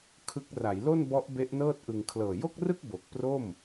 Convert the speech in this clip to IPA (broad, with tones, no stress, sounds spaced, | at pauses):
kʰ ɯ˦˥ k̚ r a˩˦ j l o˥˩ n b ɔ˦˥ ʔ b e˦˥ ʔ n ɤː˥˩ t̚ ʔ ɯ˧ ŋ kʰ l ɤː˨˩ j o˥˩ k̚ r ɯ˥˩ k̚ b o˨˩ k̚ p r o˥˩ m